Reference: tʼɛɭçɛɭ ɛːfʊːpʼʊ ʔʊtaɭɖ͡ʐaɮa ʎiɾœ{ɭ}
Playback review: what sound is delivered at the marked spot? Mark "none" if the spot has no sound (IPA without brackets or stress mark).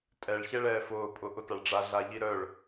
ɭ